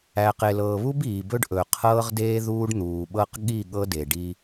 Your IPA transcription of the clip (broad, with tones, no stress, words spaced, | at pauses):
æ˨qe˨lɤː˨βu˦b iː˨bɵ˦ɖʔɵ˨ qʰɤː˦ʁdeː˦ ðuː˦ɖ n̪uː˨ɓɤ˦q ɠi˦˨ ɠɤ˦de˨ɖi˦